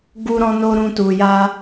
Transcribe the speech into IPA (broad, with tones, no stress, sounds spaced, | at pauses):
ɡ u˦ ɾ ɔ̃˦ n o˦ ɾ ũ˧ t u˨ j a˧